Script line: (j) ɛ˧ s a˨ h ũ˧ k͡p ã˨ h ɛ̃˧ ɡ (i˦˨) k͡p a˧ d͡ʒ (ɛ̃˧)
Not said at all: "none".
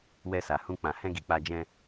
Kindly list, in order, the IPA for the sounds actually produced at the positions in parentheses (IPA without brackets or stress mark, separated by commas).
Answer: w, i˨, ɛ̃˧